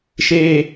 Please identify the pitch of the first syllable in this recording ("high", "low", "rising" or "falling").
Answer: high